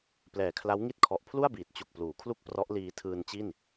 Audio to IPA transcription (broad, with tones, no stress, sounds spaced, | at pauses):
p l ɛː˨˩ kʰ l a˦˥ w ŋ i˥˩ t̚ kʰ ɔ˨˩ ʔ pʰ l u˥˩ a̯ b iː˨˩ t̚ t͡ɕ u˨˩ k̚ p l uː˩˦ kʰ l u˥˩ k̚ p r ɔ˦˥ ʔ l iː˧ tʰ ɯː˧ n t͡ɕ i˥˩ n